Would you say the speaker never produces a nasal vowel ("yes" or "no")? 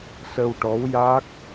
yes